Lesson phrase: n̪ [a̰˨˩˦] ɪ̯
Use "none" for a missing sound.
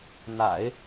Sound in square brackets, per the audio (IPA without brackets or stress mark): a̰˨˩˦